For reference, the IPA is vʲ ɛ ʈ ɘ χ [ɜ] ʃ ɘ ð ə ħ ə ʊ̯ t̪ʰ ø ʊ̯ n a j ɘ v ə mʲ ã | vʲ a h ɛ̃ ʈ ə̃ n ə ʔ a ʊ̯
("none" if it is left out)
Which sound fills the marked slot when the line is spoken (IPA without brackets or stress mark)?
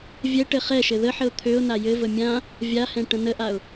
ɛ